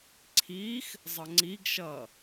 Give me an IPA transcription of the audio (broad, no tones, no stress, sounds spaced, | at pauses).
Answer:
ǀʰ iː x | zˤ ʌ ŋ͡ǀ i ɡ ʃ ʌː